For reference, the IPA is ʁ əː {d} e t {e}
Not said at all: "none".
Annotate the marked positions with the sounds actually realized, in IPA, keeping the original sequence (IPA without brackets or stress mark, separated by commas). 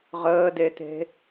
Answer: d, e̤